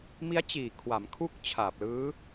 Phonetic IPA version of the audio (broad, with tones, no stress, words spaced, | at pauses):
mi˦˥a̯t͡ɕiː˨˩ kʰwa˩˦mkʰu˦˥k̚ t͡ɕʰaː˨˩p̚lɯː˦˥